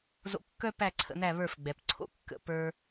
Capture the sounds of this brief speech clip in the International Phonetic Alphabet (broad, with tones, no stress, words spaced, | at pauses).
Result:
zo̰˧kːœ˥pæ˥˩ǀʰə̰˥˩ n̪æ˥˩βə˞˥˩fɡ͡bɛ˩p ǀʰo̰˥kːə̰˩˥pə˞˧